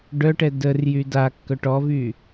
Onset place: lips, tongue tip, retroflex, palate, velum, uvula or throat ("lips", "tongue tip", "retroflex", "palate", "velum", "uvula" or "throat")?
retroflex